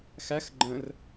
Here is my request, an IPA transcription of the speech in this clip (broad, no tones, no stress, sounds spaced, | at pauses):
x æ x ɡ͡ǃ ə̃ r